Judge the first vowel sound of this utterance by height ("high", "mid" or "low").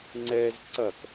mid